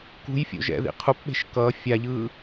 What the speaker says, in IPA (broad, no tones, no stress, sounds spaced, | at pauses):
k ṳ j fʲ o̰ ʒ ɛ̰ ð ḭ qʰ u p ɓ e̤ ʃ k ʌː fʲ a ʎ ɯː